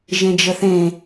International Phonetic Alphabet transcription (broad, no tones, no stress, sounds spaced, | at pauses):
ʒ ẽ d͡ʒ ə θ ẽ